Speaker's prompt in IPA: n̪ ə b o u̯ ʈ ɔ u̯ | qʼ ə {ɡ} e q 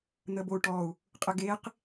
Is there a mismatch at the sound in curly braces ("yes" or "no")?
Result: no